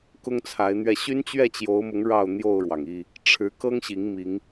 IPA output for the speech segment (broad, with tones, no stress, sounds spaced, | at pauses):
k ʊ˦ ŋ t͡sʰ a˨˦ ɪ̯ n̪ ɥ ɛ˧ ɕ y˦ n t͡ɕ ɥ ɛ˥˨ t͡ɕ j o˨˦ ʊ̯ m ʊ˨˦ ŋ ɻ ɑ˥˨ ʊ̯ n̪ j o˥˨ ʊ̯ ɻ w ɑ˩ ŋ i˥˨ | ʈ͡ʂʰ ɻ̩˨˦ k ɤ˦ ŋ ɕ i˨˦ ŋ m i˨˦ ŋ